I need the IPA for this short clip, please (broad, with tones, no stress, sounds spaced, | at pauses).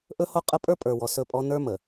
ʔ ɵ˦ h o˦ qʼ ə˦ pʼ ə˞˦ pʼ ə˞˨ w ɔ˨ s ɵ˦˨ pʼ ɔ˦ n ə˞˦ m ə˨